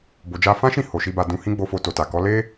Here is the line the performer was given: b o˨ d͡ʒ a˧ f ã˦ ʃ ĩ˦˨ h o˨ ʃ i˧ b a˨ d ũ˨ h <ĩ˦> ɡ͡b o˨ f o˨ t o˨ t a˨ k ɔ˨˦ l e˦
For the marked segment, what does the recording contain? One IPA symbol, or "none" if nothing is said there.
ĩ˧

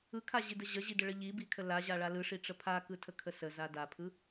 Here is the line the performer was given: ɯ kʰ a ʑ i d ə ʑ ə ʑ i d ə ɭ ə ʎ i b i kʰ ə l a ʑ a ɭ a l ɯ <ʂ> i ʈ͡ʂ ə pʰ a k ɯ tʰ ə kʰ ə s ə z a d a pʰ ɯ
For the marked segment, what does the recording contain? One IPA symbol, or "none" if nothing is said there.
ʂ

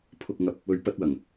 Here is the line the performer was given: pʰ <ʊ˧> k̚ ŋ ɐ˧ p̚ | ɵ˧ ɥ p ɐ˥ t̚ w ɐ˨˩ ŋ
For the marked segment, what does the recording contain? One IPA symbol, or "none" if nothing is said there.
ʊ˧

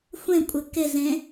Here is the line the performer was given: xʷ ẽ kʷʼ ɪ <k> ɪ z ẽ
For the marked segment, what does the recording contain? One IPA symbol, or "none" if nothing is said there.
k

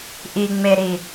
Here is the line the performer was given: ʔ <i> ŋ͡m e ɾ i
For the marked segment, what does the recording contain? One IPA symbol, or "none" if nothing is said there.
i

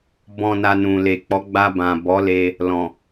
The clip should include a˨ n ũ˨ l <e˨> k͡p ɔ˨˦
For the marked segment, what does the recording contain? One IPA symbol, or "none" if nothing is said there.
e˨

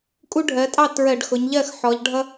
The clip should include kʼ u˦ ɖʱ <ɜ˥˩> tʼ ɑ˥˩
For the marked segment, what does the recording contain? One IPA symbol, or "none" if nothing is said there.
ɜ˩˧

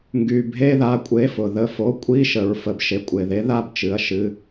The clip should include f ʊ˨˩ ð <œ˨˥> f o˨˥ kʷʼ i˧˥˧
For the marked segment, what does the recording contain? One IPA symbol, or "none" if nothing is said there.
ə˨˥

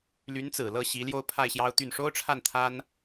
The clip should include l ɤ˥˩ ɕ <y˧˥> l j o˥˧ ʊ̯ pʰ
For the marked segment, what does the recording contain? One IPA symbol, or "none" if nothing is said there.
i˧˥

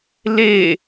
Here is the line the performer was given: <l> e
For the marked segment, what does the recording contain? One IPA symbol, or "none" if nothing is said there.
l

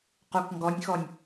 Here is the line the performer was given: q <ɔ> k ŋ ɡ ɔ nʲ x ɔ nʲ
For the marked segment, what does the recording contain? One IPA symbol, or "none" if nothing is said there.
o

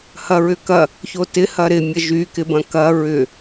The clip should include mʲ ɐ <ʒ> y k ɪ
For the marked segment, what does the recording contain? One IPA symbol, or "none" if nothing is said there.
ʒ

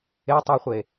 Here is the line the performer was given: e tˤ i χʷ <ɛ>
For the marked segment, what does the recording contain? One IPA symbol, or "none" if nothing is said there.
e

